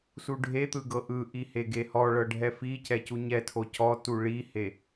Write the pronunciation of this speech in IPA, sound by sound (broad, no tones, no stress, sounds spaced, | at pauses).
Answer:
s u ɖʱ e t̪ ɯ ɡ ɤ ʔ ɯ ʔ i h e ɡ e h ɔ ɭ ɤ ɖʱ ɛ f i c ɛ c u ɲ ɛ tʰ o c ɔ t u ɭ i h e